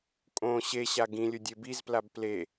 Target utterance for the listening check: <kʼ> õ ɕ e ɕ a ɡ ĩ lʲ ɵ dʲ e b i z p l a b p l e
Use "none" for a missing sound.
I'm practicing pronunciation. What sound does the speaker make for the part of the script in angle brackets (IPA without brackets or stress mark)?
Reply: kʼ